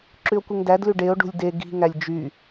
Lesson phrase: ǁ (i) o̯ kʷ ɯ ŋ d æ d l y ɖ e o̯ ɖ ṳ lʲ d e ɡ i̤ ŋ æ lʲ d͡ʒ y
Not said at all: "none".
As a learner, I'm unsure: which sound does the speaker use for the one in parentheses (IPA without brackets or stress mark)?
y